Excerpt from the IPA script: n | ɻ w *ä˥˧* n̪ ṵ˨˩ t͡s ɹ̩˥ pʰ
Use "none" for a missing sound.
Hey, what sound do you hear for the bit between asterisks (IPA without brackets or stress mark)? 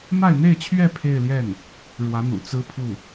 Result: ä˧˥